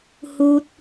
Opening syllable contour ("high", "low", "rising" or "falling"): high